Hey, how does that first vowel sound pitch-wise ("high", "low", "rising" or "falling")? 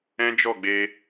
high